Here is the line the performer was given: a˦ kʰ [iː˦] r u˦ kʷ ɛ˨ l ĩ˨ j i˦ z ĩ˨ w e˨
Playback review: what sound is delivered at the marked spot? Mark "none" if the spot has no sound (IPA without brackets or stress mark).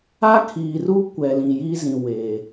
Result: iː˨